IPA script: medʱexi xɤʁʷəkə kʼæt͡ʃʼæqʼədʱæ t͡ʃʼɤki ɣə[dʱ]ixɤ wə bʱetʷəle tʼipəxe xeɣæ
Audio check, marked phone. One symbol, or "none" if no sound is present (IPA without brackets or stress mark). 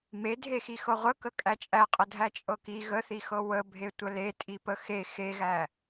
θ